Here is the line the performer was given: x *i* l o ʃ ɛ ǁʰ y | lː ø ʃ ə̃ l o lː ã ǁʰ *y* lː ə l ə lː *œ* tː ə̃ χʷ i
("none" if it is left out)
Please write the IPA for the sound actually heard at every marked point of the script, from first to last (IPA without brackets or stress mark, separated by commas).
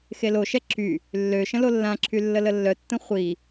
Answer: e, y, œ